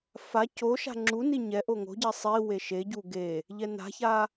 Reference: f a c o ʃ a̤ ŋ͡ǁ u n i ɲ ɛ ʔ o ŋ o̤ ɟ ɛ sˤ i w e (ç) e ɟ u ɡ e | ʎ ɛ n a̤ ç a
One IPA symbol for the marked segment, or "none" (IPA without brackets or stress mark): ʃ